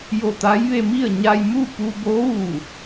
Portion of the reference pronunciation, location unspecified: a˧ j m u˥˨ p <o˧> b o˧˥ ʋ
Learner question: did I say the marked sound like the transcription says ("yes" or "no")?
no